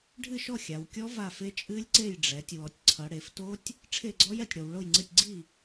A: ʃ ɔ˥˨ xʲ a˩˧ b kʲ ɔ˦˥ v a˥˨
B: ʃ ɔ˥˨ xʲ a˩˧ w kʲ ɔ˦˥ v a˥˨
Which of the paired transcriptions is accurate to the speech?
B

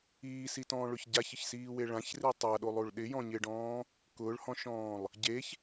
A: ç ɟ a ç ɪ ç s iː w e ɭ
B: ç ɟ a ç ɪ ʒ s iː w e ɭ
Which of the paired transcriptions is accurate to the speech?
A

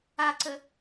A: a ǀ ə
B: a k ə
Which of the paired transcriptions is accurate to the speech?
A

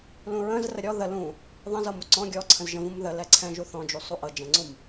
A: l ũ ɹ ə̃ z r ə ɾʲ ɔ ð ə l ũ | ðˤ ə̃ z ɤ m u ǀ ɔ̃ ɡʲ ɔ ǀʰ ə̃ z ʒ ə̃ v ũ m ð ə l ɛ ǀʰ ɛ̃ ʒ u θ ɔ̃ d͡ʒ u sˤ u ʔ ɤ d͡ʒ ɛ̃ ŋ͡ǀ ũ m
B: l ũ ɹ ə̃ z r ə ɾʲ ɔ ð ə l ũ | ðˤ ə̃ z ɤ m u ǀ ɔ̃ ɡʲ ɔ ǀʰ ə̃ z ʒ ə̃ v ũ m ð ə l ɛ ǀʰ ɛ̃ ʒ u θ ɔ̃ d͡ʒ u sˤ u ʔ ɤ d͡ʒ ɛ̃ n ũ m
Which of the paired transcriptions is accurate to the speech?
A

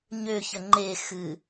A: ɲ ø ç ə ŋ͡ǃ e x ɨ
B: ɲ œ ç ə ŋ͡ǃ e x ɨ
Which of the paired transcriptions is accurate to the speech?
A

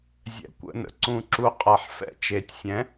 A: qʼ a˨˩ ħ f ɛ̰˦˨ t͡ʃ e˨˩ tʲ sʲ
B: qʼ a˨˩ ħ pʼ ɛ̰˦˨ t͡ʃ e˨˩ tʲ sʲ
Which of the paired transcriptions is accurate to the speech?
A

